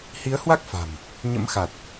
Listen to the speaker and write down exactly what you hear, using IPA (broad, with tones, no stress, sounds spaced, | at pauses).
h i˨˦ ə̯ h w a˦˥ k̚ f a̤˨˩ m | ɲ ə̰˧˥ m x a˨˩ t̚